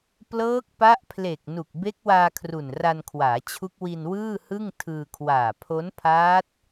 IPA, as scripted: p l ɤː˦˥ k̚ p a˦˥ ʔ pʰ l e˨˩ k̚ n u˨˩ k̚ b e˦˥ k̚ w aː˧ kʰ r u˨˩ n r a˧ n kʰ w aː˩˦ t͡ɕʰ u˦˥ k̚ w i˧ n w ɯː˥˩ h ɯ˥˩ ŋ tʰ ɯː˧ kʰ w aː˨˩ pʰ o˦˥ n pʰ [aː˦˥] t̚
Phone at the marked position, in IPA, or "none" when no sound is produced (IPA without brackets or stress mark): aː˦˥